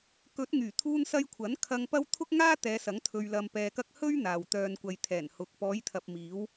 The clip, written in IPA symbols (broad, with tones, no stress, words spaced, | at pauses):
kɵ˨˥t̚ŋyː˨˩ t̪ʰuː˧nsɐ˧jkʷʰɐ˨˥n kʰɐ˧ŋpɐ˥w t̪ʰʊ˥k̚ŋaː˥t̪ɛː˨˧sɐ˨˥ŋ t̪ʰɵ˧ɥlɐ˧mpɛː˧kɐ˥k̚ hɵ˥ɥ n̪aː˨w t̪œː˨nkʷɐ˨jt̪ʰɛː˨˩n hʊ˨k̚ pɔː˨˧jt̪ʰɐ˨p̚miː˨˧w